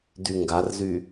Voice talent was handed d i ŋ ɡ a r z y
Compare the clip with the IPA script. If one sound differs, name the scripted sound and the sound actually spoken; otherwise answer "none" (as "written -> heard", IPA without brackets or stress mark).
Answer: i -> y